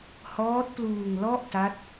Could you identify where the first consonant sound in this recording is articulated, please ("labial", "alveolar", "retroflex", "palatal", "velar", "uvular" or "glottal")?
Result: glottal